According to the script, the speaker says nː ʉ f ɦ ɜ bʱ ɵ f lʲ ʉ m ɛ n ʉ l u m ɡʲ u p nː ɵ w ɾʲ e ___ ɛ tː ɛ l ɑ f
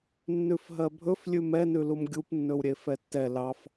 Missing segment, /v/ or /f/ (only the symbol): f